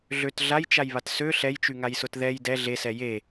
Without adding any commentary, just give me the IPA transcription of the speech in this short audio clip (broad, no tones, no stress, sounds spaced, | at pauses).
ɮ ø t ɮ a j t͡ʃ a j β a t s ø ɬ ɛ j t͡ʃ y ŋ a j s ʊ t ð ɛ j d ɛ ɮ e s ɛ j e